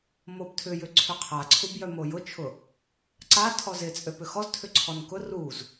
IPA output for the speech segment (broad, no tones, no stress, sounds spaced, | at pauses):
m o b tʰ ʏ j ʏ ǀʰ ʏ qʰ a ǀʰ u b j œ m o j ʊ t͡ʃʰ ʊ | ǀ a tʰ ɔ z ɪ t͡sʼ ø p ʏ x ɔ z tʰ ʏ ǀʰ ɔ n k ʊ r u z